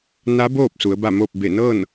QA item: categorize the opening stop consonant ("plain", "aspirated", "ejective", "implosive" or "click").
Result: plain